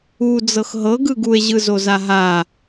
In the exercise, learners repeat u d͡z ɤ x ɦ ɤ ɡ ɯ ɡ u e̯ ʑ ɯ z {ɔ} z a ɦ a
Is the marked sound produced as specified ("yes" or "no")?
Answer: no